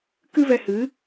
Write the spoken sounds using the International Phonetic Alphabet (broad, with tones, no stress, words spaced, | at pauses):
kɨ˦vɛ˧hɨ˨˦